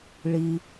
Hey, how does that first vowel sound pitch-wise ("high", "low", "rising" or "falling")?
low